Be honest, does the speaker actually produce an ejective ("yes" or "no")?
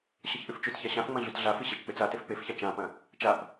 no